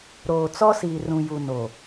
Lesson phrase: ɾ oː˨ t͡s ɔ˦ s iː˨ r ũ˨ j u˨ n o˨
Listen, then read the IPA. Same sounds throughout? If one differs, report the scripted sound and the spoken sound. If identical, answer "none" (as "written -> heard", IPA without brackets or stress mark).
none